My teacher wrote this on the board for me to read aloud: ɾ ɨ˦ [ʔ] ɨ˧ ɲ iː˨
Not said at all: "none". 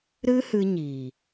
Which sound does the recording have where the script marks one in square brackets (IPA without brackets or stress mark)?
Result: h